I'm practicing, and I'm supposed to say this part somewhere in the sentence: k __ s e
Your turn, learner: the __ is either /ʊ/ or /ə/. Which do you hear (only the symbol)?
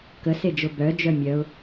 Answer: ə